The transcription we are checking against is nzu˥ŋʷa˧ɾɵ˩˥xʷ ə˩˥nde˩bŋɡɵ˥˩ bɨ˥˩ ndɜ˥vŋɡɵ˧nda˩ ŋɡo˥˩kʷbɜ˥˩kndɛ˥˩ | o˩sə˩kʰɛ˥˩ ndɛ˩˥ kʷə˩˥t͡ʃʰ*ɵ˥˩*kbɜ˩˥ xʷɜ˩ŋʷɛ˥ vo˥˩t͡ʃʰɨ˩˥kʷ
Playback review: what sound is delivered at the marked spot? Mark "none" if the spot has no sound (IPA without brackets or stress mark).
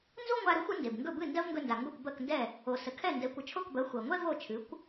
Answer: o˥˩